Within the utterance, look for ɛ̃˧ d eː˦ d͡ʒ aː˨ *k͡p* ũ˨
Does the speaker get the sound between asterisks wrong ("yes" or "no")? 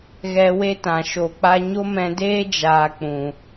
no